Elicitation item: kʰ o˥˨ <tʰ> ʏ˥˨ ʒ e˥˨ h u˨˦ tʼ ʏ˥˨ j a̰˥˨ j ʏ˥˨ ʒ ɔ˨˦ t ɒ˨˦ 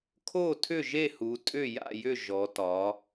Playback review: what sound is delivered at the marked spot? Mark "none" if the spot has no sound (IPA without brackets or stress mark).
tʰ